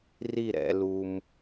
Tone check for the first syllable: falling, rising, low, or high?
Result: falling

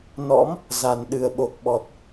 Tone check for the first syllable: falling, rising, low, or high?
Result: rising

